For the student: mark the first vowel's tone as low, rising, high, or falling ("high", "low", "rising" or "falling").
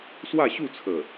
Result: falling